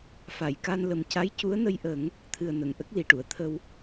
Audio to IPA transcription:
f a˨˩˨ j k a˧ n l ə˨˩ m c a˧˥ j c u˧˥ ə̯ n ə˧ j ʔ ə˨˩˦ ŋ | t̪ʰ ɨ˨˩ ə̯ n ə˨˩˨ ŋ ʔ ə˦˥ k̚ l i˨˩ ʈ u˨˩˨ ə̯ t̪ʰ ə˧ w

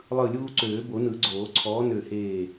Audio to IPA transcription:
lˠ ɯ˧˩ lʲ uː˦ ǀ øː˨˩˦ b o˨˩˦ n ɯ˨˩˦ ɡ͡ǀ oː˨˩˦ ǀʰ ɔː˨˥ n ø˧˩ h eː˧˩

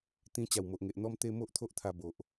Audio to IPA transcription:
t̪ ĩ˧ t͡ɕ a˨˩ w m o˨ ʔ ŋ e˨ ʔ n̪ ɔ˧ m t̪ e˧ m o˦ ʔ t̪ʰ o˦ ʔ t̪ʰ a˧ b o˨ ʔ

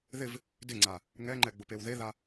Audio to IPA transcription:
ð ɪ v | d ɪ ŋ͡ǀ a | ŋ ɛ ŋ͡ǃ ɛ ɡ͡b ʊ p e w ð e ð a

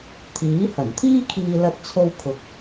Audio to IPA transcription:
t̪ʰ iː˨˥ h ɐ˨˩ n t̪ʰ iː˥ kʰ iː˧ l ɐ˥ t̚ t͡sʰ o˥ w kʰ ʊ˧ k̚

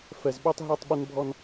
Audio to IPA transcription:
f ɛ˨ z ɓ ø˦ tˤ ɦ œ˦˨ tˤ ɓ ɪ˦ n bʱ ɔ˦ n

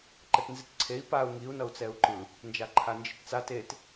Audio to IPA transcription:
ǃ ɛ t n z i t ǀʰ e i̯ p a u̯ ŋ i u̯ n ʌ u̯ t͡s ɛ u̯ ǃ ɯ | n d͡ʒ a ǃʰ a n d͡ʒ i t t͡s a t e t

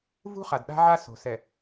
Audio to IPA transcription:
v ṳ˦ χ a˨ d ɗ a̤˦ ʕ a˦ s o̤˨ s ɛ˨

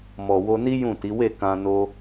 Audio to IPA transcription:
m ɔ˨ w o˧ n i˦ j ũ˦˨ t i˨˦ w e˦˨ k ã˧ n o˧

